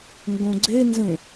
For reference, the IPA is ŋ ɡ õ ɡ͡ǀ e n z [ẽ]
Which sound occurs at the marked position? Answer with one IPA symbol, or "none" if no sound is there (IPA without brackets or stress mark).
ẽ